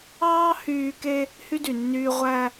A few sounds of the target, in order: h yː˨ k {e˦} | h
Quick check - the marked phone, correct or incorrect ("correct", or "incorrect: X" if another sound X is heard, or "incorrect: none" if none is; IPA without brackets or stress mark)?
correct